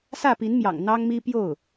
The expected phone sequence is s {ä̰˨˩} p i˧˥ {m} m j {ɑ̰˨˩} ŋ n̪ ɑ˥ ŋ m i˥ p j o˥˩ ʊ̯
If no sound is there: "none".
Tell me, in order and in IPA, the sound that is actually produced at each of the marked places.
ä˥˩, n, ɑ̰˨˩

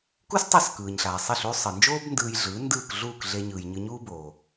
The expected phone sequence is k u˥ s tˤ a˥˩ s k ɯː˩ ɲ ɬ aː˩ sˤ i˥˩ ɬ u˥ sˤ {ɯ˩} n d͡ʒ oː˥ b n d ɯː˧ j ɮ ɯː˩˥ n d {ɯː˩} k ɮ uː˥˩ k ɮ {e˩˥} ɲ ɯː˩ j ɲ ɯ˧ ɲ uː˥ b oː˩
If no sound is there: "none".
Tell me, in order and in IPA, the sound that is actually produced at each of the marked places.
ɯ˩, ɯː˥˩, e˧

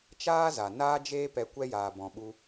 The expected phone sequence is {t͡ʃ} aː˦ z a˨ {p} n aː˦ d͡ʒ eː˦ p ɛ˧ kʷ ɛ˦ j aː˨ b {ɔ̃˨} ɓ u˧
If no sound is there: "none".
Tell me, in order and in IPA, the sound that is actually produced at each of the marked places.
t͡ʃ, none, ɔ̃˨

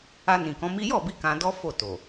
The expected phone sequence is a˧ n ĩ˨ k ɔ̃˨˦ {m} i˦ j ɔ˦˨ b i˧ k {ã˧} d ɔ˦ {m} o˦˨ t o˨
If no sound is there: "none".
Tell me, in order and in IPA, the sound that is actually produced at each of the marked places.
m, ã˧, f

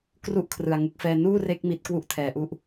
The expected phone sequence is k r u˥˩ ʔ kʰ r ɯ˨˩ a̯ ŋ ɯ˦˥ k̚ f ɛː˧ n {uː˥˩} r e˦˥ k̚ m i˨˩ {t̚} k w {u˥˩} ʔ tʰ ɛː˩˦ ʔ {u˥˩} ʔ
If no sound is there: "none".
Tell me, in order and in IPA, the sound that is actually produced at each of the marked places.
uː˥˩, t̚, u˥˩, u˥˩

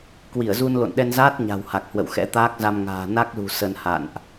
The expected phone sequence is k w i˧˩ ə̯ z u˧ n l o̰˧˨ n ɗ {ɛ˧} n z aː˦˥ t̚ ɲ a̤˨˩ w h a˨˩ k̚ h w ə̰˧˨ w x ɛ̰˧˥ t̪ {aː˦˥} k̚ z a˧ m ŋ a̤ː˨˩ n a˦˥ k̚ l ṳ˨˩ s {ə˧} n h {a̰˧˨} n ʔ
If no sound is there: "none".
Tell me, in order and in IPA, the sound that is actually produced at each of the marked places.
ɛ˧, aː˦˥, ə˧, a̰˧˨

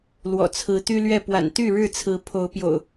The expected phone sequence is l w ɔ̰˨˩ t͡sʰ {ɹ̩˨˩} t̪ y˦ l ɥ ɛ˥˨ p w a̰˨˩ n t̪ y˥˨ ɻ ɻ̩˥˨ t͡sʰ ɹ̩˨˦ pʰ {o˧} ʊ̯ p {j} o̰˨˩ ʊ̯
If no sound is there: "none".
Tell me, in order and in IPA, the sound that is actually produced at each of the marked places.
ɹ̩˨˦, o˨˦, j

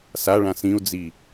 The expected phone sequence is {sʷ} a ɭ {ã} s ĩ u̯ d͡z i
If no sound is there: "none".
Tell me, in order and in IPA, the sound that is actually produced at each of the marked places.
s, ã

